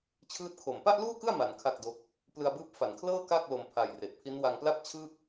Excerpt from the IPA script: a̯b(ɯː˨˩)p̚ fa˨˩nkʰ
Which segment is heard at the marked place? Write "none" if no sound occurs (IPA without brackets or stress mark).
ɯː˦˥